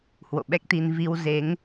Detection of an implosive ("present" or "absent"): present